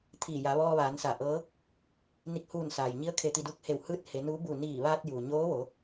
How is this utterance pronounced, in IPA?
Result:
t̪ʰ iː˧˩ j a˩˧ ʋ ɔː˧ ʋ aː˩˧ n s a˧˩ ʔ ɤː˧˥ | n i˧˩ k̚ h uː˧˩ n s aː˩ j ɲ i˧˥ ə̯ kʰ e˧ t̪ i˧ d u˧˥ k̚ h e˧˩ w h ɯː˧ t̚ h e˩˧ n u˧˥ b u˧˩ n iː˧˩ ʋ aː˧ t̚ j uː˩ ɲ oː˧˥ ʋ o˩˧

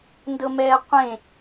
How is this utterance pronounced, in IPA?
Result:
n d ɤ m ɛː qʷ ẽ

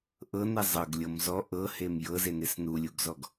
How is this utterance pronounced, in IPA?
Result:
ʔ ɤ n e zˤ ɤ ɡ lʲ ɤ m z ɔ ʔ ɤ h e m j ɤ z e n e s n u lʲ u ɡ z ɔ ɡ

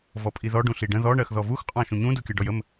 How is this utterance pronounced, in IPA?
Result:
v ɔ pʼ i ð ɔ ɖ ũ ɬ i ɖ ə̃ ð ɔ ɳ ɜ x ð ɔ v u x qʼ ɑ̃ ʃ ũ ɲ ũ d u kʲ ɜ ɖ ɔ j ə m

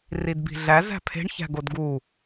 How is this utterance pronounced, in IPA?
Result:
r i d b i̤ ɮ æ z æ̤ pʰ e̤ ɳ ç æ̤ ɡ o d ɡ u

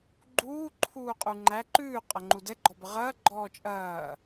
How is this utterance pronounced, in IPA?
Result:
ɡ͡ǃ uː ǃʰ uː qʼ u ŋ͡ǃ æ ǃ ʉː qʼ ɐ ŋ͡ǃ u d ɛ ɡ͡ǃ ɔ b ə ʁ ɐ ɡ͡ǃ ɔː t͡ʃʼ ɐː

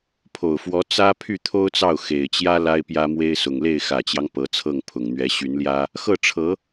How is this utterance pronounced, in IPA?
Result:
pʰ o˨˩ ʊ̯ f w ɔ˧˥ t͡s ä˥ pʰ y˥˩ t̪ʰ o˥ ʊ̯ t͡s ɑ˥˩ ʊ̯ x e˨˩ ɪ̯ t͡ɕ j ä˥ l a˥ ɪ̯ p j ä˥ m w e˥ ɪ̯ s ʊ˨˩ ŋ l e˥˩ ɪ̯ x ä˨˩ t͡ɕ j ɑ˦ ŋ p ɤ˧˥ t͡sʰ ɤ˥˩ ŋ pʰ ʊ˨˩ ŋ n̪ ɥ ɛ˧˥ ɕ y˧˥ n l j ä˥ | x ɤ˥˩ ʈ͡ʂʰ ɤ˧˥

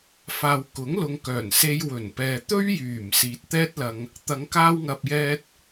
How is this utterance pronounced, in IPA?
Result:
f aː˨ w k ʊ˨˥ ŋ l ʊ˨ ŋ k œː˨˩ n s e˧ j w ɵ˨˩ n p ɛː˨ t̪ ɵ˥ ɥ j yː˨˩ m s iː˨ t̚ t̪ ɛː˥ t̚ l ɐ˧ ŋ | t̪ ɐ˨˧ ŋ k aː˧ w ŋ ɐ˨ p̚ j ɛː˧ t̚

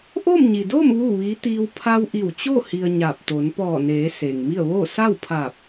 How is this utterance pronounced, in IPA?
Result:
ʔ oː˥˨ m ɲ i˩ d oː˥˨ m ʋ uː˥˨ ʋ iː˧˥ t̪ iː˧ w pʰ a˧ w ʔ i˧˩ w t͡ɕ o˥˨ h i˧ ə̯ ɲ a˧˩ p̚ t̪ o˩˧ n p ɔː˧˩ n eː˩˧ s eː˩ ŋ m i˥˨ ə̯ ʋ oː˥˨ s a˥˨ w pʰ aː˧˩ p̚

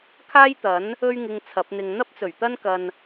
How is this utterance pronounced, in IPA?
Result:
kʰ aː˥ j t̪ ɐ˨˥ n | ɵ˧ ɥ ŋ ɪ˨ ŋ t͡sʰ ɐ˨˥ p̚ n̪ ɪ˧ ŋ n̪ ɐ˥ p̚ t͡s ɵ˨˩ ɥ t̪ ɐ˥ n k ɐ˧ n

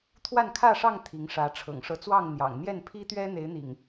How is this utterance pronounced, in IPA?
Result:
t̪ʰ w a˥˨ n kʰ ä˥˨ ʂ ɑ˥˨ ŋ t̪ʰ i˨˦ ŋ ʂ ä˨˦ ʈ͡ʂʰ ɤ̰˨˩ ŋ ʂ ɤ˨˦ t͡s w ɑ˥˨ ŋ n̪ j ɑ̰˨˩ ŋ n̪ j ɛ˥˨ n pʰ i˦ t̪ ɥ ɛ˦ n̪ e˨˦ ɪ̯ n̪ ḭ˨˩ ŋ

